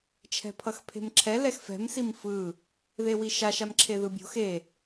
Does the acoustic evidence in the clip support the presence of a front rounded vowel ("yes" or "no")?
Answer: no